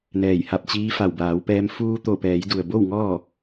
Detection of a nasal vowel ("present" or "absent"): absent